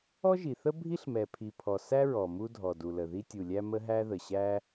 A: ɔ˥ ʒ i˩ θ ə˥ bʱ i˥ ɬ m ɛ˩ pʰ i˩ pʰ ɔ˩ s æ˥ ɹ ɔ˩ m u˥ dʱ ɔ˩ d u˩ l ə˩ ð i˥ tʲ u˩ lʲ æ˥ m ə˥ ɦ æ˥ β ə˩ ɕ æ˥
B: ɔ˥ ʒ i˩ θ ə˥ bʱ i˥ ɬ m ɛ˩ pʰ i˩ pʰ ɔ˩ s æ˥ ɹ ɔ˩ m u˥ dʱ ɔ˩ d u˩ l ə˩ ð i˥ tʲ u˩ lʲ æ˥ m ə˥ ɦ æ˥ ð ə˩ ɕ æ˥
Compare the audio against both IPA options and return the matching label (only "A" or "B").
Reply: B